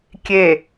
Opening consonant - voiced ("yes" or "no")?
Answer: no